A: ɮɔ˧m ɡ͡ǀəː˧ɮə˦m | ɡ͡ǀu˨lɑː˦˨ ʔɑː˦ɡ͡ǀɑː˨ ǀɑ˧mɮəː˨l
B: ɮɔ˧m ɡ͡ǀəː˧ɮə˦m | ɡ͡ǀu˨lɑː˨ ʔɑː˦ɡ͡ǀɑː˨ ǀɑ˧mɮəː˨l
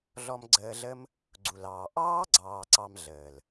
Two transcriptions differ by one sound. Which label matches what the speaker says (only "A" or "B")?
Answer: B